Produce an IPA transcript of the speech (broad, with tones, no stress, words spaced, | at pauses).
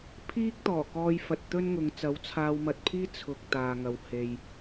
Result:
pʰiː˥k̚t̪ɔː˨˩kɔː˧jfɐ˨t̚ t̪ɵ˥nŋʊ˨˧ŋ t͡sɐ˨˥wt͡sʰaː˧wmɐ˧t̚pʰiː˥ t͡sʰʊ˨k̚ t̪aː˨ ŋɐ˨w he˨j